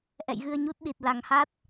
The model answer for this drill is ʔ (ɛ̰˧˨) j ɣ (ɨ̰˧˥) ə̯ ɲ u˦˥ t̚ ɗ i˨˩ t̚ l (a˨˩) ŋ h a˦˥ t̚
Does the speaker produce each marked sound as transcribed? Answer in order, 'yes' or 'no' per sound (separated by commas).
yes, no, yes